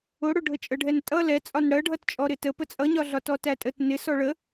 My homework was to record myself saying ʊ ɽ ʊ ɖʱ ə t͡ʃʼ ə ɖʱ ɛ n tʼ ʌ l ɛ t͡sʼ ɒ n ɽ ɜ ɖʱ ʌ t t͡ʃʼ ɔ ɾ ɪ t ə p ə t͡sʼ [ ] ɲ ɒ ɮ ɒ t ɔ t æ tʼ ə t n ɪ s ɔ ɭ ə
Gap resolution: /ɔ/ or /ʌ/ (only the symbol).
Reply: ʌ